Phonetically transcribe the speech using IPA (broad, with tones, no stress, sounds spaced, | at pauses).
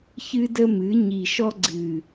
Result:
ç ɨ˦ d ə˦ m ɨ˩˥ ɲ i˨˩ ʃ ɔ˦ ɡ͡ǀ ɨ˨˩